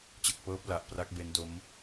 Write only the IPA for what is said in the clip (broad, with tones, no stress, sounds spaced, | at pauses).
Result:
t͡ɕ ɯ˨˩ k̚ p ɤː˦˥ p̚ l a˨˩ ʔ p r a˦˥ k̚ b e˦˥ n d o˦˥ m